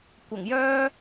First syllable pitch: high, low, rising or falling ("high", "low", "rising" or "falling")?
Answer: low